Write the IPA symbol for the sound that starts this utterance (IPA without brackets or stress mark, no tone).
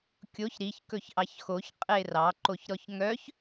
kʲ